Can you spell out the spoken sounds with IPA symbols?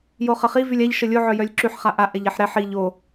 j o χ ə χ i v y lʲ a ʎ ʃ ə lʲ o ʕ œ j œ lʲ ǁ y ħ χ a ʔ a ʔ ɛ ʎ ɛ ħ ɾ ɛ ħ i ʎ o

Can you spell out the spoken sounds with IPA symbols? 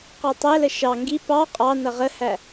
q ɑ tˤ æ l ə ʃ ɑ ŋ ɡ i p ɑ qʼ ɑ n ʌ ʁ ə h æ

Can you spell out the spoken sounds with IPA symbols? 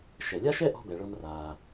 ʃ ɛ˩ lʲ a˥ ʃ ɛ˥ ʔ ɔ̤˧ b ɛ˩ ɭ ɤ˧ m r a˩

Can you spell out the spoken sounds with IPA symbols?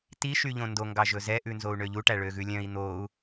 t i ʃ y ʎ õ n d o ŋ ɡ ɑ ʒ ɵ z ɛ ʔ ʉ n z o u̯ ɳ ø ʎ u ʈ æ ɭ ø ɣ ʉ lʲ œ̃ i̯ n̪ o u̯

